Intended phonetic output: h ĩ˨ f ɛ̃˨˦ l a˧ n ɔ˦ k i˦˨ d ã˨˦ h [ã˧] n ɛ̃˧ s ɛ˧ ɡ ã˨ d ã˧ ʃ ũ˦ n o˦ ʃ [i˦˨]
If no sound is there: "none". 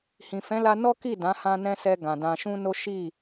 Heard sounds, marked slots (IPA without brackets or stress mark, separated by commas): ã˧, i˦˨